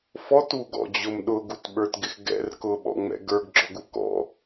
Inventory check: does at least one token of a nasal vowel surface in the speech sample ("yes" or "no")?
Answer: no